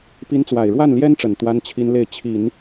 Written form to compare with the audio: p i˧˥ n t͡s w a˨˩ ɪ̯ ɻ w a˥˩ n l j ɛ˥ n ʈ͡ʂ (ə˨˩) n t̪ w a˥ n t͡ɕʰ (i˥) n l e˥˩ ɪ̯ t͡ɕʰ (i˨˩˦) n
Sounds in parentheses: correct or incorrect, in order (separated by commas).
correct, correct, correct